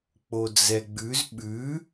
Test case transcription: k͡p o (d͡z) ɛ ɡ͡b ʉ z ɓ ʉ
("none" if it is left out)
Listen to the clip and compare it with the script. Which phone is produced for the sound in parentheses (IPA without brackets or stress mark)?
d͡z